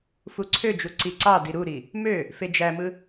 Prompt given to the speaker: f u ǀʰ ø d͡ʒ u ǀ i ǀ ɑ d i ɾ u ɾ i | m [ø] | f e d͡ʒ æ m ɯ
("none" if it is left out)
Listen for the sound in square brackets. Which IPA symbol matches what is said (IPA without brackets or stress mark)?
ø